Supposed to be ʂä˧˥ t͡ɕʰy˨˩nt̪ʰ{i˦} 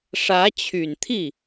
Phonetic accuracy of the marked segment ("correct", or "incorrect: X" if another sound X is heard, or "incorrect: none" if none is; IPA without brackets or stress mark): incorrect: i˥˩